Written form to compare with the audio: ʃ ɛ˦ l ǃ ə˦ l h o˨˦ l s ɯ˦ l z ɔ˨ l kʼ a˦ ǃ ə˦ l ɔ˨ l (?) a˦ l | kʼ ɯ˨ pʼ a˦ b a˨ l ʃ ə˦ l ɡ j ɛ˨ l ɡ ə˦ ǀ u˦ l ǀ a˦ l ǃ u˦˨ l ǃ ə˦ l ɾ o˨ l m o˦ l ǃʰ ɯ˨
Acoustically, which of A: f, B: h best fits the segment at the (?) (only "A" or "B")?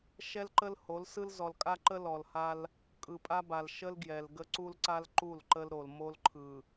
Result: B